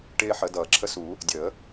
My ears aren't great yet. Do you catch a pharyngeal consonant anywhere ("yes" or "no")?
yes